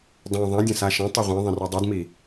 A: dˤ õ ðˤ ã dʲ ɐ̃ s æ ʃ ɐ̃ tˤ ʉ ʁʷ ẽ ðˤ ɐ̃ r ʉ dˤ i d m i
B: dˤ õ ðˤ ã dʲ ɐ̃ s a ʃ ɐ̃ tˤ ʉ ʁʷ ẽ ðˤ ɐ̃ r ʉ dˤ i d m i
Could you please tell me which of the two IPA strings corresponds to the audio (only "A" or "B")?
B